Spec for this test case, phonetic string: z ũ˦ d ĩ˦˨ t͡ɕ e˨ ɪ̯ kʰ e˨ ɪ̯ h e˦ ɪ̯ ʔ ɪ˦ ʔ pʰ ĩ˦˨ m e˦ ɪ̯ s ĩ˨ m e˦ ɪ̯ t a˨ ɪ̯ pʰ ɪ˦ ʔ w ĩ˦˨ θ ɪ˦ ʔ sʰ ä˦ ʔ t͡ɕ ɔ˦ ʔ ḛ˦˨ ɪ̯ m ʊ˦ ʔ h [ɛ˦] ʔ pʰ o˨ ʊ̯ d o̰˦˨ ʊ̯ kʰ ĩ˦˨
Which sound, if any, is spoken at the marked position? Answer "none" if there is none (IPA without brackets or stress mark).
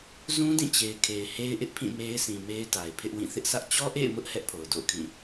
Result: ɛ˦